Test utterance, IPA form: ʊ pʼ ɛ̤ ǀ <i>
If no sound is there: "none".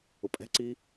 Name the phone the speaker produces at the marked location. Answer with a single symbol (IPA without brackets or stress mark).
i